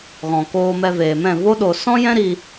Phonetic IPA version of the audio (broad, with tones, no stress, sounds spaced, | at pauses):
ɣ ɔ̃˨ k oː˧ m ɛ˧ v eː˨ m ɛ̃˦˨ v o˦ ɗ o˧ s ɔ̃˦ j ɛ̃˦ ɾ iː˧